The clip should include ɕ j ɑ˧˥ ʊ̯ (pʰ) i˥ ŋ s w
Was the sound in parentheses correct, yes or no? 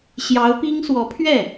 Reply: no